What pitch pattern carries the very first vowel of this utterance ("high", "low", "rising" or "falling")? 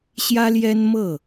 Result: high